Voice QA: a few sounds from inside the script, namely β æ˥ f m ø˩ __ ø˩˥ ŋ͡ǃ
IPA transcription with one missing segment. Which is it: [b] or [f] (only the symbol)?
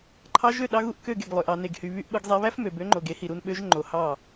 b